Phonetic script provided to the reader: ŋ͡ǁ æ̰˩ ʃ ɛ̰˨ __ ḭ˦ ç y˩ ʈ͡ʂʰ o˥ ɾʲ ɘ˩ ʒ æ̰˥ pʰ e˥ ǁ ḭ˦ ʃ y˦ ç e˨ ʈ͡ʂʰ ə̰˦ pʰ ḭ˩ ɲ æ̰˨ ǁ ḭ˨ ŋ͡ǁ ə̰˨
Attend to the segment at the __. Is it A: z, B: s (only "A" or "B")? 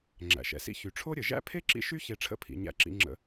B